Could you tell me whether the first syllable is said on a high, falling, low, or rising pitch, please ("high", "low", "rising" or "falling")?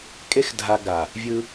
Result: high